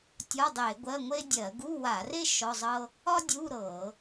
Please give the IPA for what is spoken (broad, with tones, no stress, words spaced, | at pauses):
tʲɒ˧˥˧dˤe˧˩˧ ɡʷɜ˧˥˧ŋʷe˥ dʲɜ˧˩˧ɡu˧˥˧wa˧˩˧re˥ ʃɔ˧˥˧zˤɤ˥ | ɒ˥dʲu˧˥˧ ɾɤ˧˩˧